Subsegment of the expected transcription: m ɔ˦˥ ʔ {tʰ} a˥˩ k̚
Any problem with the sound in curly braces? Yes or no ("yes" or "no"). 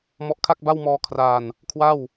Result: yes